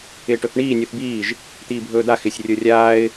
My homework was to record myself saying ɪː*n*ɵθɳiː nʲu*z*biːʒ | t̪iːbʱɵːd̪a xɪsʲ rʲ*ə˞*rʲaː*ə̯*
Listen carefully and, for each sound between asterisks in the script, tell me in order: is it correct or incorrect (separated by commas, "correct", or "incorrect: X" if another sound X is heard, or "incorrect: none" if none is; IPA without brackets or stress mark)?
incorrect: ʈ, incorrect: θ, correct, incorrect: ɪ̯